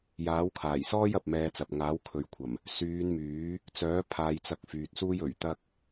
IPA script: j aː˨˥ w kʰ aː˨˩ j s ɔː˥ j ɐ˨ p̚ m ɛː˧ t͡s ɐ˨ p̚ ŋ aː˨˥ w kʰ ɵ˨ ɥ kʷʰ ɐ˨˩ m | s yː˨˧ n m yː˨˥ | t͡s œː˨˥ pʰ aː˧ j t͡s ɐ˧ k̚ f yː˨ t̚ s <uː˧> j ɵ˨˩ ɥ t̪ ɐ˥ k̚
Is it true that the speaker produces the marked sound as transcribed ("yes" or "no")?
no